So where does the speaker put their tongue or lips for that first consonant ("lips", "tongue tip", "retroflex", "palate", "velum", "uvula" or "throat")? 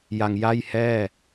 palate